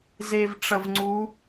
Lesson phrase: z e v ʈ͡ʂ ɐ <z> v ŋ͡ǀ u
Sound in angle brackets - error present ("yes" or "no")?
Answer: yes